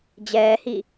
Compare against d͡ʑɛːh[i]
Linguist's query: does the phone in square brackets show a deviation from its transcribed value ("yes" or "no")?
no